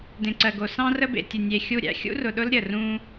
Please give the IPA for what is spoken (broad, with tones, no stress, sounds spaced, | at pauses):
d ẽ˨ ǀ ɜ˨ ɡ o˨ s ɑ̃˦ r ə˦ b ḛ˨ tʲ ə˨ nʲ e˨ xʲ u˦˨ ɾʲ æ̰˦ xʲ ṵ˦ r ʊ˨ ɗ ʊ˦ l ɾʲ ə˨ r ũ˦